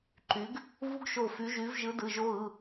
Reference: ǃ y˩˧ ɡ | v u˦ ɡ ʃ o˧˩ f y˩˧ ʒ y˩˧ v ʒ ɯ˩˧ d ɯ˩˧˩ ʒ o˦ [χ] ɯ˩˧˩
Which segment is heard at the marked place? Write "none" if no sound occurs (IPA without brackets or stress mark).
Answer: ɣ